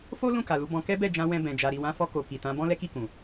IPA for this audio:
fo˦ lũ˦˨ka˨lu˨˦bɔ̃˧ kɛ˦bɛ˦˨d͡ʒã˧wɛ̃˧ bɛ̃˧d͡ʒa˧ ɾi˨wã˨˦fɔ˧ ko˨ki˨tã˨˦ bɔ̃˦lɛ˦ki˦˨kũ˨

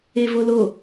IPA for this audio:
evolo

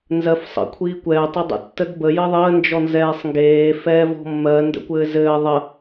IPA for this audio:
nzɜfsˤə̰ kʷʰiːkʷɛː tˤɘdˤə̰ tːədbə jɘðˤəː nd͡ʒɔnzɛːsˤŋɡeː fɛːvɔ̤mːɜ ndə̰kʷɘːzɘː ðˤə

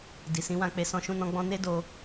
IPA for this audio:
di˨sĩ˨˦wã˧k͡pe˧ sɔ̃˦ʃũ˦nɔ̃˦ ɡ͡bɔ̃˦ ne˦ do˧

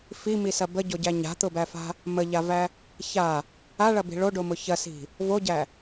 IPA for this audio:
fimisɐ bəɟoɟæ ɲa̤t̪ʊbæfa̤ | məʎavæ | ça | aɭɐbi̤ ɭoɖomʊ çɐsi̤ | voɟæ

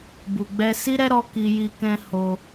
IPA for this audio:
bu˨ɡ͡bɛ˧ si˦ɾɛ˦ɾɔ˧ ki˧ji˧ kɛ̃˧ ho˧

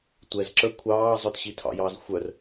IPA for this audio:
tʷɛzǁə˞ kʷʰɑːzˤœt ɕitʰɑ̰jɑːz xʷœr

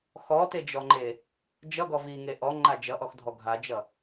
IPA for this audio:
xɔted͡ʒɔŋ͡ǃe | d͡ʒʌɡɔ viŋe ʔɔŋ͡ǃa d͡ʒʌʔɔxdʱɔ ɡʱad͡ʒʌ

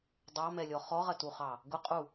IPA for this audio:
dˤɑmɛlʲɔ χɔʁɐtuχɑ | ɡʊqʼu

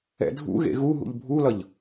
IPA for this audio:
ɛ̰dʱṵɣḛ ɣu ɦṵʎbʱulʌʎ

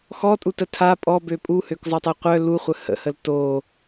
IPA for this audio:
xɔtʼutə tʰa pʼɔbø pʼuhøkzˤotˤɛ qʷœ luχʷə hə̰həl to

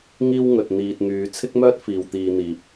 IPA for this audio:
ŋiː˥wŋɵ˨t̚ n̪iː˨t̚ŋyː˨˧ t͡sʰɪ˥k̚mœː˥t̚ fiː˨wt̪iː˧n̪iː˨p̚

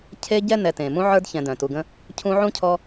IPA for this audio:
cʰe˦ ɟɛ˥nɛ˨ tẽ˩mũ˦ ʕə˞˥dçɛ̃˨ dœ̃˩tu˨ɡə̃˦ | cʰũ˦ʕũ˥cʰɔ˦

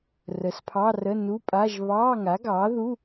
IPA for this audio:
rə˩˥spʰɑ˧˥˧rə˧˥˧ nu˧˥˧pʼa˧˥˧ʒ βɑː˧˥˧ŋa˩˥ɡɑː˩˥ðu˧˥˧

